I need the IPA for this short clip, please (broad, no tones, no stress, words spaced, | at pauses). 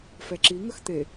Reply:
fɛǁi ŋəxt̪e